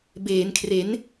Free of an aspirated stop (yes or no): no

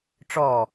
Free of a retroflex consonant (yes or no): no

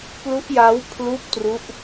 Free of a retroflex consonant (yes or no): yes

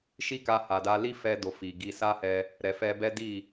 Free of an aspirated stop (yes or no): yes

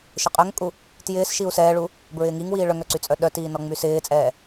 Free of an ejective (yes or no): no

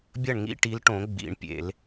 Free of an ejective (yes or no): yes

